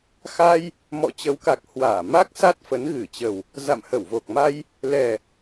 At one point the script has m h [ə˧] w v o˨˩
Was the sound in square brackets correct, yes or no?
no